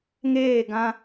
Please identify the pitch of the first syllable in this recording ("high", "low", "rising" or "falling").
falling